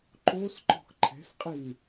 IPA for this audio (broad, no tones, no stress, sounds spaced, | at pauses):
ǃ o s ǃ ɔ̤ x ǃʰ ɛ̤ s qʼ i n